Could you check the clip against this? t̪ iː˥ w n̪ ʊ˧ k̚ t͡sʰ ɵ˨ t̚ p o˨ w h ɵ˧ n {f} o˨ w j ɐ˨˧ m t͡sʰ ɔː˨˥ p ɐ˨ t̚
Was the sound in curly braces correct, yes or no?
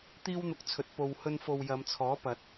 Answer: yes